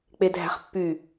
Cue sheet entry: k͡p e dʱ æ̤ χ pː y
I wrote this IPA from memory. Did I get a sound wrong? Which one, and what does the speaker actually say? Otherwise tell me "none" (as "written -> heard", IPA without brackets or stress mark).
none